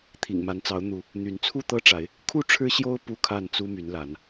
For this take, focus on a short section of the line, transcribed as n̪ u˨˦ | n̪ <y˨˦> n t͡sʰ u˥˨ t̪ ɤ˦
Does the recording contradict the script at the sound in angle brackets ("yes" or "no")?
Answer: no